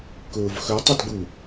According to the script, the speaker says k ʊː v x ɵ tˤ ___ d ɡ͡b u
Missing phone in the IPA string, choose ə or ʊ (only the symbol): ə